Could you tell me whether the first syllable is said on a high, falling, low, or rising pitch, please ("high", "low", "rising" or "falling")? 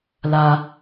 low